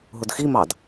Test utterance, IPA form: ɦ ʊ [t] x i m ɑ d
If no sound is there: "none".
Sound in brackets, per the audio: d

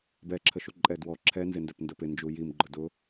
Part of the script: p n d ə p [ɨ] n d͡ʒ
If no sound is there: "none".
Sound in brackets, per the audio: ɪ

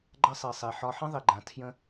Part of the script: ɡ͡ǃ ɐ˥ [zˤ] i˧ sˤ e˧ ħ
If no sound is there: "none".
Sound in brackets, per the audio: sˤ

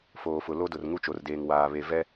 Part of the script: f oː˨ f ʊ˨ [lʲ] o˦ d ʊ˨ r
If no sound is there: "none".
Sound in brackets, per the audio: l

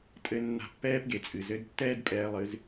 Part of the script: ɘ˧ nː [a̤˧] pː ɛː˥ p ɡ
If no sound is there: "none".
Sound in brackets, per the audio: a̤˧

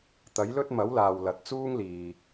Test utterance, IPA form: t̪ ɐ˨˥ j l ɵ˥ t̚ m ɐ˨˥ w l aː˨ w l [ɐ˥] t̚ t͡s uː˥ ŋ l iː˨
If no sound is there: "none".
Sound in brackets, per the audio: ɐ˨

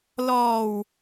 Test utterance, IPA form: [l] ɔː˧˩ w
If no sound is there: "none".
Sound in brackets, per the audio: l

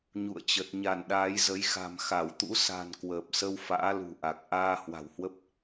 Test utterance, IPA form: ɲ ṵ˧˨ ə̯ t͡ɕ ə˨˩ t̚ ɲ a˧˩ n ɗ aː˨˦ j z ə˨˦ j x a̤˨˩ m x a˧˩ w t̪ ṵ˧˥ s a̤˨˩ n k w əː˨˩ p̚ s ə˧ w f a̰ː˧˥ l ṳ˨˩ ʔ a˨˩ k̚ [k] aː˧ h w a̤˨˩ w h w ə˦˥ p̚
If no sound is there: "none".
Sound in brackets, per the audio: ʔ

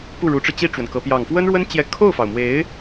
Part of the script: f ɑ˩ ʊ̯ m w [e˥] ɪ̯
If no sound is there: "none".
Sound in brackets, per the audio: e˧˥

